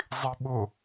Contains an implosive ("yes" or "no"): yes